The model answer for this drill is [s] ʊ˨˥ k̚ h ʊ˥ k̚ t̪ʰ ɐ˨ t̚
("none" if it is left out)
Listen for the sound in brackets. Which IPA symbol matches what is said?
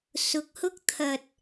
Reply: s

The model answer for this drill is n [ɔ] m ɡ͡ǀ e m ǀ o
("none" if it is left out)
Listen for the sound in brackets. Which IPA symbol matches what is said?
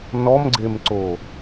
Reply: ɔ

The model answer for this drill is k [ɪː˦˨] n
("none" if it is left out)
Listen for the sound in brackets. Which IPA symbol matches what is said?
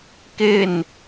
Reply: ɪː˦˨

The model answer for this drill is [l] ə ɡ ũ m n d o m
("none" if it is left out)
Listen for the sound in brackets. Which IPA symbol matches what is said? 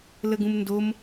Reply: l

